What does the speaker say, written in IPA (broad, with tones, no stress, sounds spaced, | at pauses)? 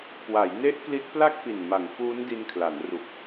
k w a˩˦ j n e˦˥ ʔ k l i˦˥ t̚ p l a˥˩ k̚ p i˨˩ n m a˩˦ ŋ f uː˦˥ n d i˧ n kʰ l a˩˦ n r u˨˩ k̚